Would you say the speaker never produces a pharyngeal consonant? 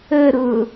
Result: yes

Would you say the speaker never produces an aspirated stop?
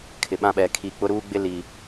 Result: no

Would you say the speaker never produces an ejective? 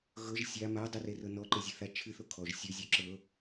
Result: yes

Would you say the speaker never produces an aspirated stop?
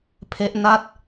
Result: no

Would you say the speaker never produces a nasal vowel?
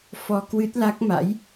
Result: yes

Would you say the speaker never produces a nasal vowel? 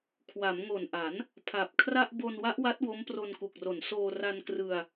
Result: yes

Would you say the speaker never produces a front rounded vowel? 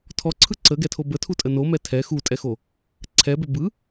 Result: no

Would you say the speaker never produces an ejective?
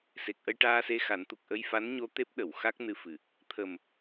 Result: yes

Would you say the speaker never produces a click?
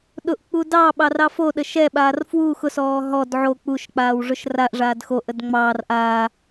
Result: yes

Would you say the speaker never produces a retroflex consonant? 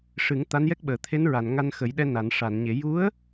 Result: no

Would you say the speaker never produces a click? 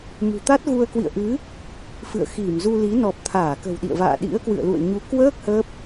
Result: yes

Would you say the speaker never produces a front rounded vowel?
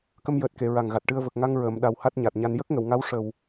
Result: yes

